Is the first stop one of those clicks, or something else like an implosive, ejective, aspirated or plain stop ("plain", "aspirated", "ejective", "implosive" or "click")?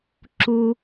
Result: click